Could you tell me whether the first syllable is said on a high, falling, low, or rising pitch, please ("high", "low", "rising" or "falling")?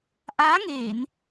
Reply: rising